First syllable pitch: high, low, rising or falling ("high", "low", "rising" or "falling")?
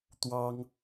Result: high